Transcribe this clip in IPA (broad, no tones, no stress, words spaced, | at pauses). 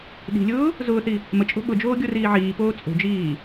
ɗi̤lʲʊː | zʊːθi | mət͡ʃʼo̤ ɓʊd͡ʒoːɡʲoriː ʕiːpoː t͡sʼo̤d͡ʒiː